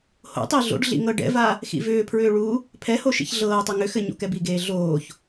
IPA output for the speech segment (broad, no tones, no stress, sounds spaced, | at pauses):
h o̰ tˤ i ɮ o̰ ɖ ɮ ḭ ŋ ɤ ɖ ɛ̰ v a | x ḭ v ʏː pʰ ɹ ʏː ɭ u | pʰ ɛ h o ʃ ḭ ç ɮ ɤː tˤ ɛ ŋ ʏ x ɘ ɲ o̰ k ɛ b i ɡ eː ɮ oː ç